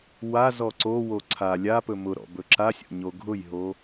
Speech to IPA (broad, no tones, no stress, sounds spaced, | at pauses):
w a z ɔ ǀ o w o ǀʰ a lʲ a p ɵ m ʊ ɾ ɔ̰ b ɵ ǁ a sʲ o̰ ɲ o ɡʱ ʊ j ɦ o